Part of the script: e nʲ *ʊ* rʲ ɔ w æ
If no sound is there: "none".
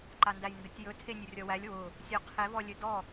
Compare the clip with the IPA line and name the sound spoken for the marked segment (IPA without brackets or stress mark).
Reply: ɵ